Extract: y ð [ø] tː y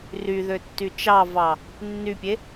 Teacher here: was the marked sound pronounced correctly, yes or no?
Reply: yes